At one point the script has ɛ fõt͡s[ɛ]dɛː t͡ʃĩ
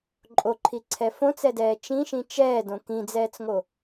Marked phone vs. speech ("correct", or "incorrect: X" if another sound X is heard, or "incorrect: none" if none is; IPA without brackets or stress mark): correct